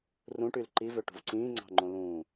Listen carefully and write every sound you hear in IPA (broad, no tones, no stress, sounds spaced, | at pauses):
r ũ ʈ y l ǃ i v ø ʈ ṳ v ǀ ĩː ŋ͡ǀ ɑ̤ ŋ͡ǃ õ l ũː